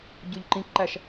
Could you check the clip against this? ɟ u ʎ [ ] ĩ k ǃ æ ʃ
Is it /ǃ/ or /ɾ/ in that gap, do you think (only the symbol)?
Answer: ǃ